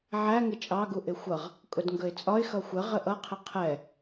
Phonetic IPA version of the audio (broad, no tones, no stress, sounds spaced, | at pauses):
ʕ æ ŋ ɪ t͡ʃʼ ɑ ɡ u ʔ ɪ xʷ ʌ ʁ | kʼ ʊ d ŋ ɡ ə ɪ̯ t͡sʼ ɒ ɪ̯ x ʌ xʷ ə ʁ ə ʔ ʌ qʰ ɪ qʰ ɛ